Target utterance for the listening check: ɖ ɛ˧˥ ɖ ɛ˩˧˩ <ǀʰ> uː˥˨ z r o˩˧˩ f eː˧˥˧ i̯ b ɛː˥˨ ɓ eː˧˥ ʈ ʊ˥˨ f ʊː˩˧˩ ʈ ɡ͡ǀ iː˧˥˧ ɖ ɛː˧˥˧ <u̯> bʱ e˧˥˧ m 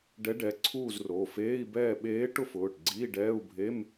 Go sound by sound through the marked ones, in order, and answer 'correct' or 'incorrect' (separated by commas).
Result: correct, correct